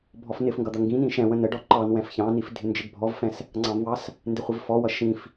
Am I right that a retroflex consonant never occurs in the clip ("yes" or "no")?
no